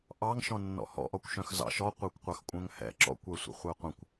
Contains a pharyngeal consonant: no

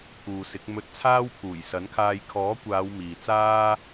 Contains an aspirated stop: yes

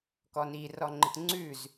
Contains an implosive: no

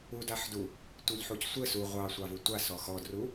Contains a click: no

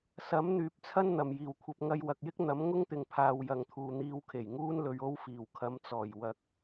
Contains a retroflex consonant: no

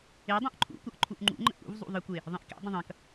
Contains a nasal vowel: yes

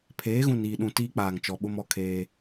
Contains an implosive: yes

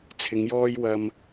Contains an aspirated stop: yes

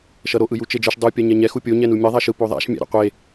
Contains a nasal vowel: no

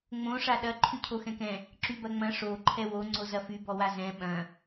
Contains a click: yes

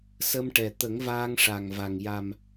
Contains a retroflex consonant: yes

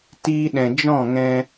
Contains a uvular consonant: no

